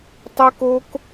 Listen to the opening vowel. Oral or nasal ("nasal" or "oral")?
oral